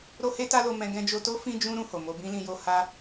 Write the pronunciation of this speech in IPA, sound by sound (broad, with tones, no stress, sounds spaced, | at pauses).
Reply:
ɾ o˦ h e˦ t a˦ l o˧ m ɛ̃˧ ɡ ɛ̃˧ d͡ʒ o˧ t o˦ f ĩ˦ d͡ʒ ũ˦ ɾ ũ˧ h o˨ m o˧ b ĩ˦ l ĩ˧ j o˦ h a˦